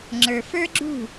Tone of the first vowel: low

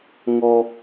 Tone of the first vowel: low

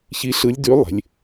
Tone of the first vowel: rising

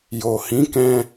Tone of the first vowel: low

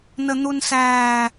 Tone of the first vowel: low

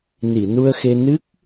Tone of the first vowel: low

